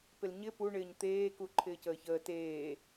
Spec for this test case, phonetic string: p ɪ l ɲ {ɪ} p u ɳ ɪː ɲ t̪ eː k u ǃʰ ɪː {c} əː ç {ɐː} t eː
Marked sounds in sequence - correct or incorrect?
correct, correct, incorrect

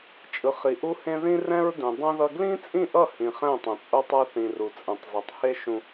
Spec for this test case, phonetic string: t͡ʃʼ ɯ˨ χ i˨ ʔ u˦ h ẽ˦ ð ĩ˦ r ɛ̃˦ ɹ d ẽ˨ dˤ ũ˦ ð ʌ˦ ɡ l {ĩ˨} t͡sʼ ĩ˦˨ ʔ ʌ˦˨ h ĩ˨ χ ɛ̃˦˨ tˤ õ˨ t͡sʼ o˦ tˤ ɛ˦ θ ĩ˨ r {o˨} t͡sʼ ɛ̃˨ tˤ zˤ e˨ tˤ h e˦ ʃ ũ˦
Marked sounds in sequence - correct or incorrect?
incorrect, incorrect

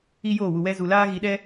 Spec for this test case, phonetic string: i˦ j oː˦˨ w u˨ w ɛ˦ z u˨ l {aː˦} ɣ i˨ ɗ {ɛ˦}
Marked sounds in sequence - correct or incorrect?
correct, correct

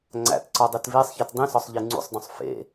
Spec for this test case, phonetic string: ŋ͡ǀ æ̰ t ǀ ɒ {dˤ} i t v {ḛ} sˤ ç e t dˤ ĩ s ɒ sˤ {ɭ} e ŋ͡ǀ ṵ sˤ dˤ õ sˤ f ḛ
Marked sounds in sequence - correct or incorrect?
correct, incorrect, incorrect

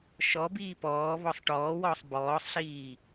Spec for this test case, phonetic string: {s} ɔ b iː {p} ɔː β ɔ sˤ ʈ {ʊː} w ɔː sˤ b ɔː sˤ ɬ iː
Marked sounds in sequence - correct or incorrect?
incorrect, correct, incorrect

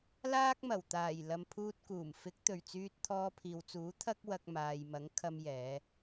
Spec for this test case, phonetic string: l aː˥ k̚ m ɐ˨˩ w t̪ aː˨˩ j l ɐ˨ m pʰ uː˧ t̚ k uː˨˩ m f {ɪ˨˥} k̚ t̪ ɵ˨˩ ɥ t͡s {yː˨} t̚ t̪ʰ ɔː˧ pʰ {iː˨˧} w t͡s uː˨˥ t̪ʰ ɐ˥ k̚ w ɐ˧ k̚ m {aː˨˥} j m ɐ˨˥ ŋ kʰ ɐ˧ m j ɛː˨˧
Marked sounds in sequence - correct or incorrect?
correct, incorrect, incorrect, incorrect

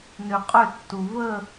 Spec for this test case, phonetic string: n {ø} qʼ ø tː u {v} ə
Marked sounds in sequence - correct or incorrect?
correct, correct

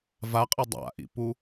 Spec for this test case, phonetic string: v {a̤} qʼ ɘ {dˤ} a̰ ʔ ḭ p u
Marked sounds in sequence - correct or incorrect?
incorrect, correct

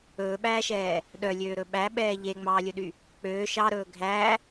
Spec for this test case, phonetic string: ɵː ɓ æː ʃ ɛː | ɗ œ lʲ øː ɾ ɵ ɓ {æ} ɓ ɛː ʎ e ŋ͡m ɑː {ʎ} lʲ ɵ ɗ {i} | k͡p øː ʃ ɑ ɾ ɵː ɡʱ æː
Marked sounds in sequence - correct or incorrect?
correct, incorrect, incorrect

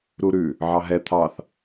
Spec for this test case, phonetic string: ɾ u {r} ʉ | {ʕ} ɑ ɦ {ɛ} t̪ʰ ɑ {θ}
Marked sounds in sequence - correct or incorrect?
incorrect, correct, correct, correct

